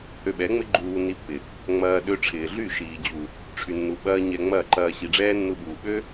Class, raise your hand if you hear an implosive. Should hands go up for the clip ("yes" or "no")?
yes